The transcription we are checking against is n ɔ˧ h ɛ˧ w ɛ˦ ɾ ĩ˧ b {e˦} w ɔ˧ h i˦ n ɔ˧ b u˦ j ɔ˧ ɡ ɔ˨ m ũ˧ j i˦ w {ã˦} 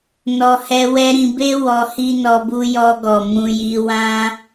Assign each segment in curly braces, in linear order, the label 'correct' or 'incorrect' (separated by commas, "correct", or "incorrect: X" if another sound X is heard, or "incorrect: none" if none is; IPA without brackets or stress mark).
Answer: correct, correct